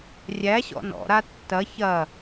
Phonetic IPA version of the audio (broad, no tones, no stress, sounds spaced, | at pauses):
rʲ æ ɕ ɔ̰ n ɔ̰ ɾ a tː ɐ ç ɐ